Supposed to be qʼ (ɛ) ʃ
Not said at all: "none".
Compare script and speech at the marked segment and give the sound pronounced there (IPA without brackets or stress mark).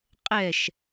ɛ